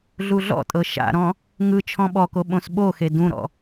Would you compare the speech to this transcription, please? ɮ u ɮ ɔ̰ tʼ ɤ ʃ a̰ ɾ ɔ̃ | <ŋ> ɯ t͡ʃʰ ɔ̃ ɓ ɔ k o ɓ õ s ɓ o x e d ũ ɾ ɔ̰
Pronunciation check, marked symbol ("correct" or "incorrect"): correct